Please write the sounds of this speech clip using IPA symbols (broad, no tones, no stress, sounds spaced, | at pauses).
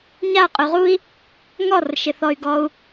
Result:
ɲ a qʼ ʉ ʁ u i̯ | ŋ ɔ r ʃ ɪ θ ɔ y̯ ɡ ɔ u̯